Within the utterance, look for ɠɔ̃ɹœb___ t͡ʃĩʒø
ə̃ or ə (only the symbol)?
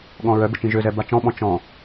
ə